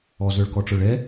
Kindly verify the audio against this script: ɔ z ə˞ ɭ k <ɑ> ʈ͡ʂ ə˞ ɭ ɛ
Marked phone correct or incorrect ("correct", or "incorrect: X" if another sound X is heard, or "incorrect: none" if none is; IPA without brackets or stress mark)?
incorrect: ɔ